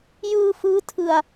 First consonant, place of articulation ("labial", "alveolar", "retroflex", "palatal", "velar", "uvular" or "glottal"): palatal